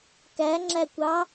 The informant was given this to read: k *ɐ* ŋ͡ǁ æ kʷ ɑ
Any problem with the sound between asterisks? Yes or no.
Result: yes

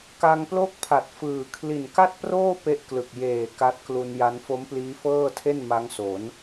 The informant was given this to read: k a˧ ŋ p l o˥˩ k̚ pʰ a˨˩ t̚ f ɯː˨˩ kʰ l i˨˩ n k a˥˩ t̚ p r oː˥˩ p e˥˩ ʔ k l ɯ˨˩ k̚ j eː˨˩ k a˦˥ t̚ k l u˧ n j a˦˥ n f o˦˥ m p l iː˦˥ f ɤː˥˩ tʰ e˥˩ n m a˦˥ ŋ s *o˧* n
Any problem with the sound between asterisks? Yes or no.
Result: yes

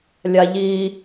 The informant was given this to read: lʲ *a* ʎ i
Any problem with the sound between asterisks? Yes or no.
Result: no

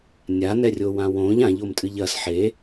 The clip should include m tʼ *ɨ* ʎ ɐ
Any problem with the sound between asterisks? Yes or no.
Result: no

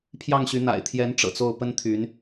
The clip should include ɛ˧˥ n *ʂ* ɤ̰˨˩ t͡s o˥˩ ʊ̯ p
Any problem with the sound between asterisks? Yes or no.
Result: yes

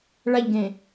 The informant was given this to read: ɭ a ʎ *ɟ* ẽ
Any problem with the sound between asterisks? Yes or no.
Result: yes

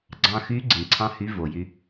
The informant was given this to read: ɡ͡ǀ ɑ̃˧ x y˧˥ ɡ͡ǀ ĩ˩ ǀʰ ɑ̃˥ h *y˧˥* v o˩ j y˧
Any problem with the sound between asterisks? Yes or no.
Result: no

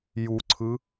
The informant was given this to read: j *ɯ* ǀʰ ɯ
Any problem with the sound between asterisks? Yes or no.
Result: yes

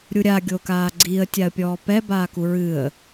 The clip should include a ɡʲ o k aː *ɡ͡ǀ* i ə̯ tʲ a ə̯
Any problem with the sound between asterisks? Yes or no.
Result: no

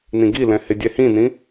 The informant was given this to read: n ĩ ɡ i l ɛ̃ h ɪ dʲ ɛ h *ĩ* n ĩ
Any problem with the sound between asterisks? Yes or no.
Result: no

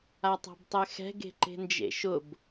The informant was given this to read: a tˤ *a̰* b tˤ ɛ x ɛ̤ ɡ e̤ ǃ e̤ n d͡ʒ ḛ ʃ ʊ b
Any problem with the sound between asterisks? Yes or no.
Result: yes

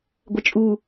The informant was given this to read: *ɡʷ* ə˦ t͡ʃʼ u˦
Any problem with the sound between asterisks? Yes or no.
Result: no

